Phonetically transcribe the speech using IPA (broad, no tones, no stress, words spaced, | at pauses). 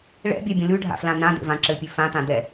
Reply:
ɭɛ̰bʲɛbʲə̃ lʉɖʱa̰flã nãd̪ḛvã ǁɘpʲʉ fãt̪ã d̪ɛ